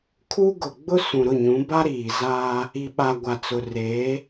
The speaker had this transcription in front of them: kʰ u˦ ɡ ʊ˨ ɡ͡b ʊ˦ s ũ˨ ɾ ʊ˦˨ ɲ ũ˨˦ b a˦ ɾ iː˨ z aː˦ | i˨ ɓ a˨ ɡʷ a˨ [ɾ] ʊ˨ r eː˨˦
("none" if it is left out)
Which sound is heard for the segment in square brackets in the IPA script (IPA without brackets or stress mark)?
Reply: t͡s